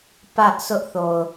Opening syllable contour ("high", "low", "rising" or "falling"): high